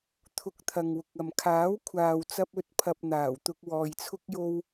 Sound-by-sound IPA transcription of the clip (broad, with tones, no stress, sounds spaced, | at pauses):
t̪ʰ ʊ˧ k̚ t̪ʰ ɐ˨ ŋ w ʊ˨ k̚ ɐ˨ m kʰ aː˨˥ w kʷʰ aː˨ w t͡s ɐ˧ p̚ ɵ˧ t̚ pʰ ɐ˨ p̚ n̪ aː˨˩ w t̪ ʊ˧ k̚ w ɔː˧ j t͡sʰ ʊ˥ k̚ j o˥ w